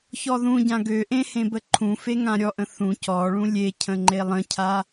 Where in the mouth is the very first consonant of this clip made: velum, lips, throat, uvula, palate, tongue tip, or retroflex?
palate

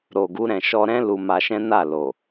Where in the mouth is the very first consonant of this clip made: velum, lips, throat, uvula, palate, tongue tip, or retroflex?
tongue tip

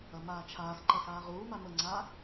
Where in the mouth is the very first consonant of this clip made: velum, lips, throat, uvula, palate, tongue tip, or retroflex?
lips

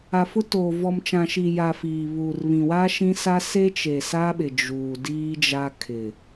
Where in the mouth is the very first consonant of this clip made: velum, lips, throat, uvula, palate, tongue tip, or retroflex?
lips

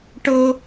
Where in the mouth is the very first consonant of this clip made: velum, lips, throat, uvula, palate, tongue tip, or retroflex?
retroflex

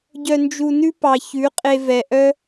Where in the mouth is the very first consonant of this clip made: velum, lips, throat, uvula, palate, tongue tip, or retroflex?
palate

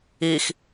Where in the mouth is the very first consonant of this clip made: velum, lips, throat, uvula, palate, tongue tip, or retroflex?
velum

